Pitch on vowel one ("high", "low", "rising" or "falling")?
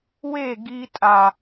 falling